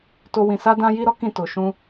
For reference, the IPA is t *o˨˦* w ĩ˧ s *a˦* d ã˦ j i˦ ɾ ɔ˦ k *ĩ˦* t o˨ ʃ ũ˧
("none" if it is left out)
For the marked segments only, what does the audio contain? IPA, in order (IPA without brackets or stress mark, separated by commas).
o˦, a˦, ĩ˦˨